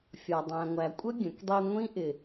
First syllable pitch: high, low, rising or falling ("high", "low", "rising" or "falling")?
low